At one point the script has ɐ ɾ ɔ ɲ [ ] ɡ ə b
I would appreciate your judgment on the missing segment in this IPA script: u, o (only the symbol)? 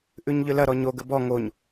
o